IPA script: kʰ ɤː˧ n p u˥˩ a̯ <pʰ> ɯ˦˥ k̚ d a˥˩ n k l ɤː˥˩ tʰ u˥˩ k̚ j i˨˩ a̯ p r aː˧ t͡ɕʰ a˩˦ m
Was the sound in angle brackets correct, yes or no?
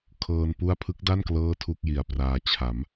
yes